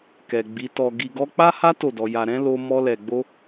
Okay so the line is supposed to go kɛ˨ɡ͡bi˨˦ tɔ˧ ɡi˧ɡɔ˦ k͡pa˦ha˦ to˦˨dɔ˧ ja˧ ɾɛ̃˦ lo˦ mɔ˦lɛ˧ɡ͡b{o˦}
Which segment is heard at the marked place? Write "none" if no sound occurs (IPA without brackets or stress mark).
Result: o˦